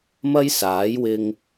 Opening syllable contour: high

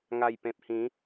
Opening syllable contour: low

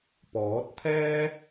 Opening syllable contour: rising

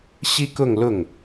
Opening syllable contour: high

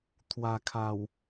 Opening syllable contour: low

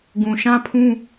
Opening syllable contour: low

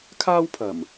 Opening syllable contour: high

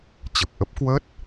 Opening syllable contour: low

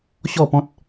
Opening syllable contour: falling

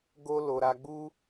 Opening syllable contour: high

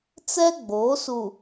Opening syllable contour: high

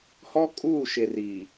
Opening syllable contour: high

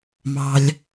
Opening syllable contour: low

